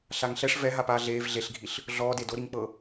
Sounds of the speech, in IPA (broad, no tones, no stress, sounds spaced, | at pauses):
ɬ a ŋ ɬ ɛ ʂ v ɛ ɦ a p aː ɮ eː v ɮ e ɬ ɡʱ i ɬ | ɮ ɔː d e d o ɾ i ŋ k͡p ɤ